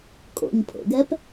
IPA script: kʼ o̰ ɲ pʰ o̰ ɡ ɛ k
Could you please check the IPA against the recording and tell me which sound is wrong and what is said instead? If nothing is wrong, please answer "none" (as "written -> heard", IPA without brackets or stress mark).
k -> p